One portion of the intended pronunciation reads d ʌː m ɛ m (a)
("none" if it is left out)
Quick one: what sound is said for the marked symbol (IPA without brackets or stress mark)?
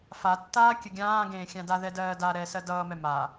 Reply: a